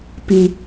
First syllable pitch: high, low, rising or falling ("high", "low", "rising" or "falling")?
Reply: low